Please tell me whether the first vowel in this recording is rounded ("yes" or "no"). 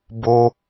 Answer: yes